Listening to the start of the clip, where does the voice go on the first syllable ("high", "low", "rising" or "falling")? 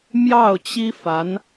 falling